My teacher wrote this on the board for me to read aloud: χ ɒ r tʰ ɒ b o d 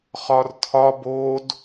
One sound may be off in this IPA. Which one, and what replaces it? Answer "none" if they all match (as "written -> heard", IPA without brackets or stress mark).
none